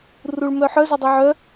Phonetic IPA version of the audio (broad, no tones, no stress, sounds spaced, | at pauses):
r u ɭ m œ ħ œ z œ dˤ ɛ ʕ œ